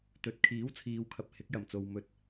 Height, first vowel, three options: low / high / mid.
mid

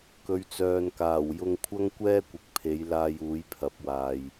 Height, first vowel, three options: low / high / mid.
mid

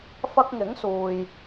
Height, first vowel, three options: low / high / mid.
low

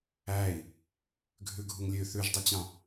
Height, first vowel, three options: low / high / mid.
low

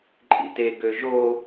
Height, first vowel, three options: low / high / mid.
high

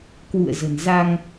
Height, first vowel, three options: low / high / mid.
high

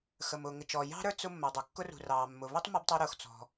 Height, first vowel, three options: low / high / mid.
mid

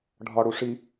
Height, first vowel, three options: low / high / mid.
low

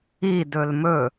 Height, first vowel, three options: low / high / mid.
high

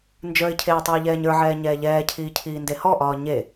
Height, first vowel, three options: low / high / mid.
mid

